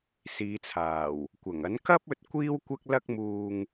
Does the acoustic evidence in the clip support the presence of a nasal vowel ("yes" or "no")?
no